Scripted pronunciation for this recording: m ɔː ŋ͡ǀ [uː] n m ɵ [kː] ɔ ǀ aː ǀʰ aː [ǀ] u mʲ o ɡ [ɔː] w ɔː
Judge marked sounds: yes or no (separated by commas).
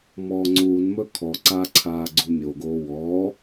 yes, no, no, no